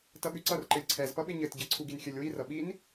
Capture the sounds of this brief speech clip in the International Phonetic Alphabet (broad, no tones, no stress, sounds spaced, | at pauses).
t ʌ ɠ ʉ ǀ ʌ r ǃ ɘ lʲ ǀʰ ɛ z p ʌ ɓ ɪ ɲ ɘ t ɟ ɘ ǀʰ u ɡ i n xʲ ɘ lʲ w i r ʌ ɓ i n